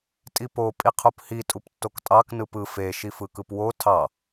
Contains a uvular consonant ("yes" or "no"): yes